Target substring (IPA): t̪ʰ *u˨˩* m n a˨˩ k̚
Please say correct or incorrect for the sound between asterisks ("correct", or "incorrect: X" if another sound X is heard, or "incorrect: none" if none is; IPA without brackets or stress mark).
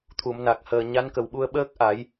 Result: incorrect: u˨˩˨